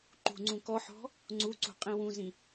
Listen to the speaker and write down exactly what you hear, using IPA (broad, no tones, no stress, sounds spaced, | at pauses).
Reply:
ǃ ṳ ŋ͡ǀ ũ k ɔ ħ ɔ̤ | ŋ͡ǀ u ǀ ṳ qʼ ĩ w ũ z ĩ